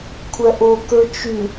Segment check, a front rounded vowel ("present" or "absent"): present